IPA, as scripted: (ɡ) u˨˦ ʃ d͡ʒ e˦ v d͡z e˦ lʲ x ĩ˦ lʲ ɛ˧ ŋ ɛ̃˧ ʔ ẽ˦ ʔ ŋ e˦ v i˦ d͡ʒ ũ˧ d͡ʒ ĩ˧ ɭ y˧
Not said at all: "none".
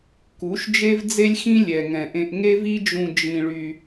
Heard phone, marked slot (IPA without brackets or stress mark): k